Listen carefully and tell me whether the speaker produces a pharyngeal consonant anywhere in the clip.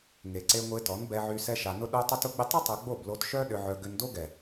yes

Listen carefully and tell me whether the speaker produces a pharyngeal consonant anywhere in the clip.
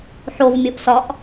yes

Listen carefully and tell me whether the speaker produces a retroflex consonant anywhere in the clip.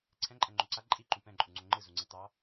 no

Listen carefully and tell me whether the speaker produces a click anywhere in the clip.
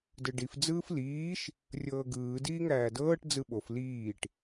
no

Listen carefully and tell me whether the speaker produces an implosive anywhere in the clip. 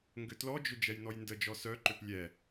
no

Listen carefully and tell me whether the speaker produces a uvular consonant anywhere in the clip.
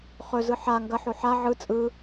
yes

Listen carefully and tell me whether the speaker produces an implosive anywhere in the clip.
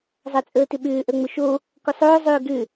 yes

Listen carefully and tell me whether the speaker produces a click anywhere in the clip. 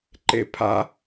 yes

